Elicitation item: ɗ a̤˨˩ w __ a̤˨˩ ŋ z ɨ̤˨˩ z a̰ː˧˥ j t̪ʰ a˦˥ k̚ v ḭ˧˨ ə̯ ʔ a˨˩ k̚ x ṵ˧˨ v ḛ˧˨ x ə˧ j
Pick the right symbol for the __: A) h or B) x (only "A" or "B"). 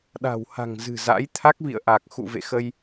A